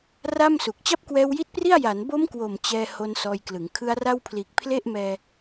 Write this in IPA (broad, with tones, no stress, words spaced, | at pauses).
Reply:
ra˥˩msu˨˩k̚ t͡ɕa˥˩p̚kwɛː˧wji˦˥t̚pri˥˩a̯ ja˩˦nbo˦˥mkwo˨˩m t͡ɕɛː˥˩ ho˧n sɔː˧jklɯ˩˦ŋ kʰɯ˧a̯ra˥˩wpʰliː˨˩k̚ pʰle˥˩ʔmɛː˧